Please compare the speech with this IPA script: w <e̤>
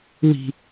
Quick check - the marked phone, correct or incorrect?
incorrect